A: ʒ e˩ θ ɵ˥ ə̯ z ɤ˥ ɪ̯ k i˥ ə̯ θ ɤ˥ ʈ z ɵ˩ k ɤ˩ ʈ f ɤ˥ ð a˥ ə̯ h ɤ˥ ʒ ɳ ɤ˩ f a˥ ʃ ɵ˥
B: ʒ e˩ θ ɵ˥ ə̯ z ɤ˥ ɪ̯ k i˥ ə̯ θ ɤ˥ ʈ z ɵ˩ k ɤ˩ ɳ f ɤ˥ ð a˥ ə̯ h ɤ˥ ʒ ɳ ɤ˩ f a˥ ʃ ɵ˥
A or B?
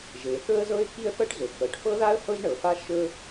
A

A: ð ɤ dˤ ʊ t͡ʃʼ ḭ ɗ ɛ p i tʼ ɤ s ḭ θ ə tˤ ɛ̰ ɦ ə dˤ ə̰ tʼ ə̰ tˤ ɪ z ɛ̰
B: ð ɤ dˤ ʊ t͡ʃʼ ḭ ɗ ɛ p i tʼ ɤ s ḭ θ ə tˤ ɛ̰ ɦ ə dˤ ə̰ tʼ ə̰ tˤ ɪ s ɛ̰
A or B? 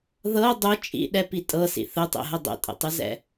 A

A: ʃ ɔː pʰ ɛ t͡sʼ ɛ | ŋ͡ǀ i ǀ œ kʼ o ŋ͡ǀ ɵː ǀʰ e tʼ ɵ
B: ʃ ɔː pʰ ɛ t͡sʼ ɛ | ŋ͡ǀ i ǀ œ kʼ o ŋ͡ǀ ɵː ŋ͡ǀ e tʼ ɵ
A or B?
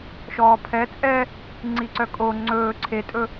A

